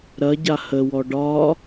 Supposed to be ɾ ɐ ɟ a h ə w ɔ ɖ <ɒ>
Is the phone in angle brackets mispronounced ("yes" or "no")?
no